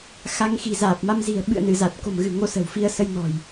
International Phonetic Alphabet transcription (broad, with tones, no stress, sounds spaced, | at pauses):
x a˧ ŋ x i̤˨˩ z aː˨˩ p̚ m a˧ m z i̤˨˩ ə̯ ɓ ɨ̰˧˨ ə̯ n ɨ˧˩ z a˨˩ t̚ k o̤˨˩ m ɣ ɨ̤˨˩ ŋ o˧ s ə̤˨˩ w f i˧ ə̯ s ə˧ j n ɔ̤˨˩ j